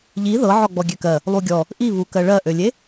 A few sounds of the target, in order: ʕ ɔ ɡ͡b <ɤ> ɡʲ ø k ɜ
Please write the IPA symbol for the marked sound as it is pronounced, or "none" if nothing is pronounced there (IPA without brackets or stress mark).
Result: ɔ